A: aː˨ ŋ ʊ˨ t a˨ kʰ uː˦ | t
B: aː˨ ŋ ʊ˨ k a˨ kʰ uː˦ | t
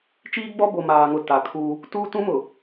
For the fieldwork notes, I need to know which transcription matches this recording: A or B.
A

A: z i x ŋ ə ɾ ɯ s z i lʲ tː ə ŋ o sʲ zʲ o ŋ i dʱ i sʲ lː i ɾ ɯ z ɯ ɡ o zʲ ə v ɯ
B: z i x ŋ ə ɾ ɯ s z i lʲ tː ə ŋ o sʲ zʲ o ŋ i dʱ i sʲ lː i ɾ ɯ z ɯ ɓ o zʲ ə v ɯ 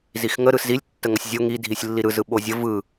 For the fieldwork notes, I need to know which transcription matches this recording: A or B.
B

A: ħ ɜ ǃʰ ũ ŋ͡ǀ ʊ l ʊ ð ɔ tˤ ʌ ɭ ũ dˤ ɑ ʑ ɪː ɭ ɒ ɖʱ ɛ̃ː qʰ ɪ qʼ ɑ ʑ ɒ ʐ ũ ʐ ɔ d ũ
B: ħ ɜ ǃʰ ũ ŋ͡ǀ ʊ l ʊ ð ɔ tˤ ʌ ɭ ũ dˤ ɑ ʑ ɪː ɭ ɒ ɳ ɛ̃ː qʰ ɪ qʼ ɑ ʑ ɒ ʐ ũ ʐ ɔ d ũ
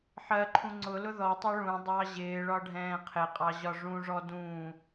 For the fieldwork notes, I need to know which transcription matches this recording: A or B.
A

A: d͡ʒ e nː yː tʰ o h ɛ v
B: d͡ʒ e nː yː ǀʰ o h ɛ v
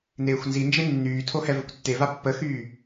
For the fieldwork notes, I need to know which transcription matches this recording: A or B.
A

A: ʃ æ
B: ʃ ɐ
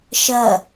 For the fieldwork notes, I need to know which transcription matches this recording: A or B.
B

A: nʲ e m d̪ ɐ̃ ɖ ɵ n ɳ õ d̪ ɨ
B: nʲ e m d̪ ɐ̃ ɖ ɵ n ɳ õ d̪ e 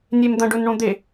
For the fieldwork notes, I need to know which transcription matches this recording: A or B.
B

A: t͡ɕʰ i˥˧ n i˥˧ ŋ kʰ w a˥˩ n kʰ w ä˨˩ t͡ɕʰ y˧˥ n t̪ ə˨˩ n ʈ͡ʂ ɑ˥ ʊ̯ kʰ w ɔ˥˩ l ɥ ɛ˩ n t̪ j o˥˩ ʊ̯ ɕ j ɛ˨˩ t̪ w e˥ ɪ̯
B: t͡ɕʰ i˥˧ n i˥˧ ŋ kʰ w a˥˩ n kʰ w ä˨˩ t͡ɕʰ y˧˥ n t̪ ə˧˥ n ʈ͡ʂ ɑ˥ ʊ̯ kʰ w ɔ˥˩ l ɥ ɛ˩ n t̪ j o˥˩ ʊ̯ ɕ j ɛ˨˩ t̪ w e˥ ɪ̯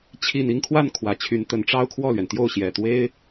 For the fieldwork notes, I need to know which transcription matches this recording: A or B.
B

